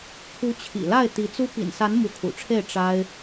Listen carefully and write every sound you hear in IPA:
kʰu˧˥t͡ɕʰḭ˨˩la˥˩ɪ̯ t̪i˧˥t͡su˥ pḭ˨˩nsa˧˥n mu˧˥kʰṵ˨˩ʈ͡ʂʰe˥˩ɪ̯ ʈ͡ʂa˥ɪ̯

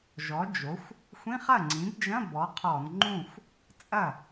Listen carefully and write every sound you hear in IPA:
ʒɔ˩˥d͡ʒo˩˥xʷ | xʷĩ˧˥˧χɐ˥˩ŋ͡ǀĩ˩˥bd͡ʒɐ̃˧˥˧ bɔ˩˥qʰɔ˧˩˧n ŋ͡ǃũ˥˩xʷ | t͡sʼɐ˥˩

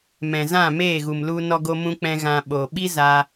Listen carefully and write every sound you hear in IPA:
mɛ̃˨zã˦˨meː˦˨ɣu˨m lu˧nɔ˧ɡo˧ mũ˧k͡pɛ̃˧ ɣã˧ɓoː˨ ɓi˦ za˧

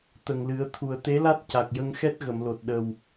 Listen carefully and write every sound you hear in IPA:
t̪ə˨˩ŋlɨ˨˩˦ə̯ t̪ʰu˨˩ə̯t̪e˧˥la˦˥t̚ ca˨˩k̚ jə˧ŋxɛ˦˥t̚ɣə˨˩˨mlo˨˩t̚ ɗə˨˩w

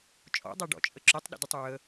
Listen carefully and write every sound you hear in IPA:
t͡ʃʼɔ̰dˤaɖɔ̰t͡ʃʼə ǁʏtˤɗə̰dʊtˤ ɹə

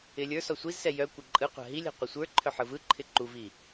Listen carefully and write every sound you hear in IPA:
ɪlʲə˞sɔ sʷizsɛ jœ kʷɛǃʼɯqʷa̤ ɦilʲa̤ qʷœsʷə˞ǃʰœ ħɯvɯǃʰɪ ǃuvi

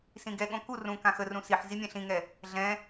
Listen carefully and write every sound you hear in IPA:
sĩɡɛɠõ ku rũ kãxərũ siħ zimʲɛ̃ɬĩŋɛ | ɮɛ̃

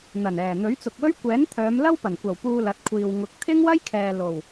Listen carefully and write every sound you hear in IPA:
n̪ɐ˨˩nɛː˨˩ n̪ɵ˨˥ɥt͡sʊ˨k̚wɵ˥ɥ kʷɛː˨˥nt̪ʰœː˨˧m lɐ˥wpɐ˨˩nkʷɐ˨˩w puː˧lɐ˨t̚kʷʰiː˨w ŋʊ˨˥k̚ t̪ʰɪ˥ŋwɐ˥jkʰɛː˨ lo˨˩w

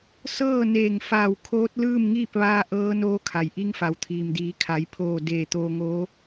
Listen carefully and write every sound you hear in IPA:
sɤː˥˨neː˧˩ŋfaː˧˩w kʰoː˧˥t̚lɯː˥˨mŋiː˥˨p̚ ʋaː˧ʔɤː˧ noː˧kʰa˩jʔi˧ŋfa˩w t̪ʰiː˩mdiː˩˧kʰa˩˧jpʰoː˧˩ deː˧˩t̪oː˧ŋoː˧˥

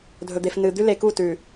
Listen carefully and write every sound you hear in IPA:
dʱɵ˨d̪e˨fnɨ˨d̪ʉ˦ le˨ku˦˨tʉ˨

